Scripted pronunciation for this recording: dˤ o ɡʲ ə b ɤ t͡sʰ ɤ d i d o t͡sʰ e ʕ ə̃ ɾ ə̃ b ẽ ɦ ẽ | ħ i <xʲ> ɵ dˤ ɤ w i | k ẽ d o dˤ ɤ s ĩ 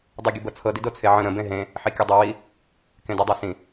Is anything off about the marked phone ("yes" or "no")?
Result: yes